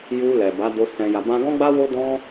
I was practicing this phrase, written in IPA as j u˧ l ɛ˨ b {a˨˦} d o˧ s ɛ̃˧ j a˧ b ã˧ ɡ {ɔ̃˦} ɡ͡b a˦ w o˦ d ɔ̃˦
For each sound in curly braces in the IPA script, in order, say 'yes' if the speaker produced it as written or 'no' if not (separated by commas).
yes, yes